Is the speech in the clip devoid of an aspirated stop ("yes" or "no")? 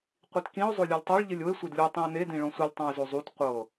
yes